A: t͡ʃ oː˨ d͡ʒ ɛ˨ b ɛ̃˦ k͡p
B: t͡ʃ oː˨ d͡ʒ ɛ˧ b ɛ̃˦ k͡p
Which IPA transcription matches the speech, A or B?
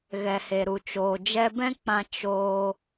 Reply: B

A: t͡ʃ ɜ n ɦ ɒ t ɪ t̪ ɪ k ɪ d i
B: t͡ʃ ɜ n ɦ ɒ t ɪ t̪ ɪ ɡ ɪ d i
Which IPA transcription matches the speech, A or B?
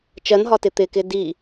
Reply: A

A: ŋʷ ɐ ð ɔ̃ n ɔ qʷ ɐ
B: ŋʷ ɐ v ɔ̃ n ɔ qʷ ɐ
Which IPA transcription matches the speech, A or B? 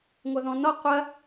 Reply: A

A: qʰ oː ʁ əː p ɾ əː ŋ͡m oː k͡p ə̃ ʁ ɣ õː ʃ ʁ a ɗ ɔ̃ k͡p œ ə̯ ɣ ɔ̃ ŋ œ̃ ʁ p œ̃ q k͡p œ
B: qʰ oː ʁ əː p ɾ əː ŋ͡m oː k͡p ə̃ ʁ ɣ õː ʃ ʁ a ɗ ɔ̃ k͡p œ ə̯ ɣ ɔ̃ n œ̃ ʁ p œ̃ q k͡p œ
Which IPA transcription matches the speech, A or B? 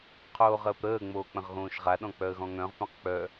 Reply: A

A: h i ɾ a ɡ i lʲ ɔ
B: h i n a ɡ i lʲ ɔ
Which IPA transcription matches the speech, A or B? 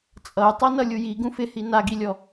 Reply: B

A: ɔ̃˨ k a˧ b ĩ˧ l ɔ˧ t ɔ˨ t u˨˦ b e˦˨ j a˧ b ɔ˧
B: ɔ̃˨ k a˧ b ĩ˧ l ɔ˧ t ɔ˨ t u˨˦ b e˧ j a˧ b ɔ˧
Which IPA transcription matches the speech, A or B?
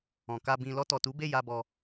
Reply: A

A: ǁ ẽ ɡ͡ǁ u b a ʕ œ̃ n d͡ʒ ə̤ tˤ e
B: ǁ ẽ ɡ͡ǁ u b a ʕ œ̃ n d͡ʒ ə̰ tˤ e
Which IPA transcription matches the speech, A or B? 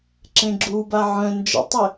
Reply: B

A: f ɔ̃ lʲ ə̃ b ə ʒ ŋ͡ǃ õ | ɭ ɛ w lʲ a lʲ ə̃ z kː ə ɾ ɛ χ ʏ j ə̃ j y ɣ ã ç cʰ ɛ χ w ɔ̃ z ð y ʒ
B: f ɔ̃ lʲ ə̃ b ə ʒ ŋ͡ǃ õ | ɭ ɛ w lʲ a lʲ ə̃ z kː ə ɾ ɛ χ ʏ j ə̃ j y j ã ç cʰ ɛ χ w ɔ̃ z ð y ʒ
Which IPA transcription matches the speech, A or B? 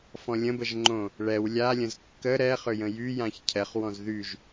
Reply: B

